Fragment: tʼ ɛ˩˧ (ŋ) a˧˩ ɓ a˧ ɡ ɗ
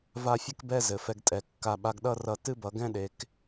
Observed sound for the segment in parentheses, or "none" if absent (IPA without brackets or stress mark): kː